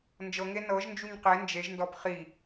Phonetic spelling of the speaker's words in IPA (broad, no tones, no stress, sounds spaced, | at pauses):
n d͡ʒ ɤ ŋ e n ɤ ʒ n d͡ʒ u ɲ q e n d͡ʒ e ʒ n d ɔ b χ i